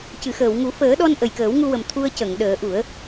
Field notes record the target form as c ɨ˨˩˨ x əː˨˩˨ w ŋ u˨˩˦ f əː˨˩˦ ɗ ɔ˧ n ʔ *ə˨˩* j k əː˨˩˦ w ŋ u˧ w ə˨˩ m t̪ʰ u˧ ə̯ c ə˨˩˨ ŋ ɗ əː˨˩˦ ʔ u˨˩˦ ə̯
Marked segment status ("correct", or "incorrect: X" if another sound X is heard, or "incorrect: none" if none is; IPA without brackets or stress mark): correct